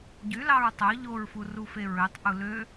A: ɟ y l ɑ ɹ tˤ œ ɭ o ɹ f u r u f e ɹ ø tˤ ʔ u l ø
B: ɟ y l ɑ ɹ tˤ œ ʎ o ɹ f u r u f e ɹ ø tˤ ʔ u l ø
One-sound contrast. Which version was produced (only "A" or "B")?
B